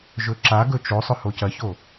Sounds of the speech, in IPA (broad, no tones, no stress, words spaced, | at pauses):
ʒɵǁaɡɵ t͡ʃosˤɵ hocɐço